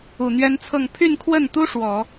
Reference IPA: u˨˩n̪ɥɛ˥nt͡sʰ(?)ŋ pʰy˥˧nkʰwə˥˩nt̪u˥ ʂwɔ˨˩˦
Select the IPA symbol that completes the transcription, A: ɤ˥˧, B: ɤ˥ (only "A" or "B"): A